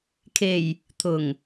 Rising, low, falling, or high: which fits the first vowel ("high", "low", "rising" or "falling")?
low